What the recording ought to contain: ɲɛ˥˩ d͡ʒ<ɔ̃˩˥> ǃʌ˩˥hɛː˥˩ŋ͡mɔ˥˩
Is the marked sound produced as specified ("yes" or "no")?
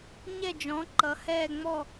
yes